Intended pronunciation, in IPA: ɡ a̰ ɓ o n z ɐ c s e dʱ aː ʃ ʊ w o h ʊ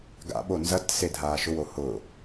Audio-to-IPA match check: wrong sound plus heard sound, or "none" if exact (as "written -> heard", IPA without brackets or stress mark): c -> t